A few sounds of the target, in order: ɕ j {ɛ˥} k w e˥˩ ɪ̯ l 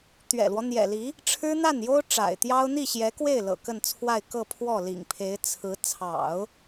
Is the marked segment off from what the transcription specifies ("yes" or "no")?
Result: yes